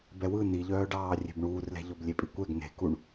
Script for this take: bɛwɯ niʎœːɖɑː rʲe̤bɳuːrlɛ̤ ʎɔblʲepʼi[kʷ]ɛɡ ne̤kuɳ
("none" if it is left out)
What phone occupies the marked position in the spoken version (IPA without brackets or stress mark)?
kʷ